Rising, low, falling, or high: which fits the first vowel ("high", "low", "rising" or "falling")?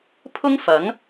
high